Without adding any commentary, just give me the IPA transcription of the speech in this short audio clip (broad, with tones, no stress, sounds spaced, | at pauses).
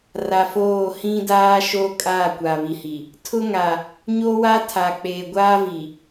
r a˨ f oː˦˨ h ĩ˦ d aː˦ ʃ o˦ kʼ aː˦˨ kʷ a˨ β i˨ h i˨ | tʰ ʊ˦ ŋ a˨ | ɲ o˦ w a˦ tʰ a˨ k͡p eː˨ ɡʷ aː˦ v i˨